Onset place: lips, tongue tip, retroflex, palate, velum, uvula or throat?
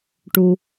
retroflex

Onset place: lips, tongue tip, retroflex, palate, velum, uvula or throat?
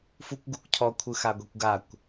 lips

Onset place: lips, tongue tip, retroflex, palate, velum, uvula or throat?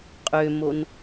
uvula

